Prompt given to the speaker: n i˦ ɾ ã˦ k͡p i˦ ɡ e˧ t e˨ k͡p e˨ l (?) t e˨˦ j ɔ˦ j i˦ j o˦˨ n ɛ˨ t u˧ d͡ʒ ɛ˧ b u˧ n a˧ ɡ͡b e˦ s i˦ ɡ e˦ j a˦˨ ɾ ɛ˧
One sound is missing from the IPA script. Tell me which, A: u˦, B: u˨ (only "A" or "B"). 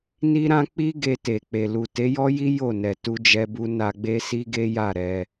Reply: B